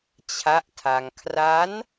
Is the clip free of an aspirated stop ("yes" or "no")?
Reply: no